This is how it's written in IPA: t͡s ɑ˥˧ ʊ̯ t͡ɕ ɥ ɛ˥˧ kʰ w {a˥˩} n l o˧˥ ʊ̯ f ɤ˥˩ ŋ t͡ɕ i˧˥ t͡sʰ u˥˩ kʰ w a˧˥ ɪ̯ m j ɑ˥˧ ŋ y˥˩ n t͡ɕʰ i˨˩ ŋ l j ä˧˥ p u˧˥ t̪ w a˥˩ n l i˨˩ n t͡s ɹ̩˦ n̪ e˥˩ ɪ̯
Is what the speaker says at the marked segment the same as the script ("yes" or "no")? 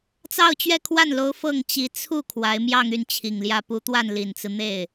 yes